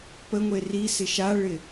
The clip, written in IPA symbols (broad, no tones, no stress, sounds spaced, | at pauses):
p ə ŋʷ e r i s ɪ ʃ a ɭ ɪ